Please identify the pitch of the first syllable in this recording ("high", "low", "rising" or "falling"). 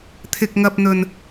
low